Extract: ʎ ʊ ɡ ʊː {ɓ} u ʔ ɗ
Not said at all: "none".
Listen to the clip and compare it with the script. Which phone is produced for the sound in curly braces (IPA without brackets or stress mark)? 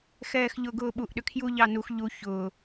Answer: ɓ